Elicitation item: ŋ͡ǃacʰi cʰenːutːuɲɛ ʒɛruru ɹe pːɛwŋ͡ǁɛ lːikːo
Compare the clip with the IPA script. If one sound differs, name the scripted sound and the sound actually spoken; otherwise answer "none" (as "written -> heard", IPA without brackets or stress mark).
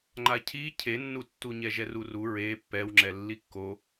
none